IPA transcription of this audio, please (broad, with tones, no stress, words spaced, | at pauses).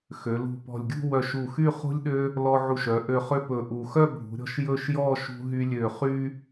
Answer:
xø˩˧ lṳ˧˩pɔ̤˧˩lʲɡʲṳ˥˧ wœ˧˩ʃ u˧˩xy˥˧ χṳ˥lʲɗø˥ | lɔ˧ʕu˧˩ʃœ˩˧ ʔø˧˩ χø˥pɵ˧ʔu˧˩ xœ˥˧bʱṳ˩˧ ɾʲɔ̤˧ʃ jɵ˥˧ʃjɔ˥˧ ʃṳ˧ɦy˧lʲø˧˩ χy˧